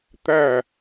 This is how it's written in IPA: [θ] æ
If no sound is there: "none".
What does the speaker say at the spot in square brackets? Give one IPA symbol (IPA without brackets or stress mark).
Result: t̪